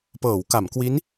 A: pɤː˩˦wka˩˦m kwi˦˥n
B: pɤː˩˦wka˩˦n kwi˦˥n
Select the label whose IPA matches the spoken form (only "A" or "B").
A